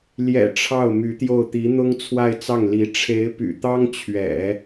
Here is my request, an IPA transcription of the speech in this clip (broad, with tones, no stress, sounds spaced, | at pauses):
l j ɛ̰˨˩ ʈ͡ʂʰ ɑ˥˩ ʊ̯ m y˧˥ t̪ j o˥˩ ʊ̯ t̪ i˧˥ n̪ ʊ˥ ŋ t͡sʰ w a˥˧ ɪ̯ t͡s ɑ˥˩ ŋ l i˧˥ ʈ͡ʂʰ e˧˥ ɪ̯ p y̰˨˩ t̪ ɑ˥ ŋ t͡ɕʰ ɥ ɛ̰˨˩˦